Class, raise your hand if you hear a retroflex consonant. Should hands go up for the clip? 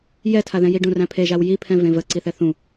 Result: yes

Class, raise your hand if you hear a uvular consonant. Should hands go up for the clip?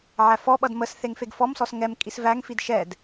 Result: no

